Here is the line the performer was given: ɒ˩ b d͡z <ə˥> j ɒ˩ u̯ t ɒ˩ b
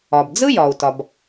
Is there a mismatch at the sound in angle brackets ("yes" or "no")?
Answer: yes